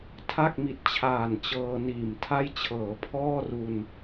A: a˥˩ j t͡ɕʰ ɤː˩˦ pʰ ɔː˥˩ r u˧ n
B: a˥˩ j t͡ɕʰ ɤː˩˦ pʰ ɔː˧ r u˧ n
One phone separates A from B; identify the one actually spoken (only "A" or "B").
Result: A